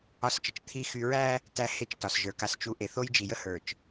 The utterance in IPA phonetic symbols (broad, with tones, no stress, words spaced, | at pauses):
ɒ˨˦st͡ʃə˨t͡ʃ t̪ʰi˨ xy˨ɹæ˦ | tæ˦he˦t͡ʃ tɒ˨sʒə˞˨ ka˨st͡ʃu˨ ʔe˨θo˦jd͡ʒi˨ jə˦hə˞˨t͡ʃ